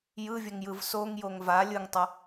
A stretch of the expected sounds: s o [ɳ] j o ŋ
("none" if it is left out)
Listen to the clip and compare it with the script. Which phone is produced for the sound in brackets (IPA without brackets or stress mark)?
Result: ŋ